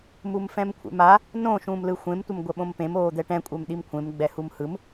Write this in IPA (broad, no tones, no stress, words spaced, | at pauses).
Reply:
mumfɛ̃mkʷʰḛma | nõ ʃũːmlɯxʷẽm tʷʌmɡʷɛɓõmpẽm oːd̪ɛʈɛ̃ kʷʼɛmɗimkʷʰẽm ɡ͡bɛhumhɯm